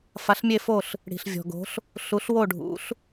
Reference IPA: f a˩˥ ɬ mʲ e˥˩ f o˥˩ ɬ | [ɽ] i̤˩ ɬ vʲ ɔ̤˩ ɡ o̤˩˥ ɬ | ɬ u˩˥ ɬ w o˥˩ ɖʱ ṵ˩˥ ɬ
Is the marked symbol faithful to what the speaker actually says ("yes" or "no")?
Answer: yes